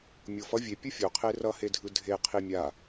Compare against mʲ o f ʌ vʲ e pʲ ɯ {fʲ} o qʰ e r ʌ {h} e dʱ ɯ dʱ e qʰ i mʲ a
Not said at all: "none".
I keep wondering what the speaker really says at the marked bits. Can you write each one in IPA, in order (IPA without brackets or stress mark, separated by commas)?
fʲ, h